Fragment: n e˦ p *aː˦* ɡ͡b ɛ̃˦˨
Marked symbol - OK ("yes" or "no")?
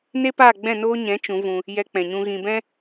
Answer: no